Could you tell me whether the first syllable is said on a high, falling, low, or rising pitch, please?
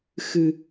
low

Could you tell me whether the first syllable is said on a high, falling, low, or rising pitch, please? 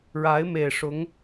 rising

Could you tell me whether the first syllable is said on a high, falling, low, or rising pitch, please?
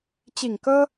low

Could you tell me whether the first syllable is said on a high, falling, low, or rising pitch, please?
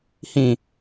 low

